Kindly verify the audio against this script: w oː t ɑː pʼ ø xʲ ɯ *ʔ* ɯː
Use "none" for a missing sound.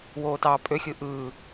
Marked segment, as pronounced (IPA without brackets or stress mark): ʔ